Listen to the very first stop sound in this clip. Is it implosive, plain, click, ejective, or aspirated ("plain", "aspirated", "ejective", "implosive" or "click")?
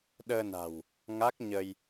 implosive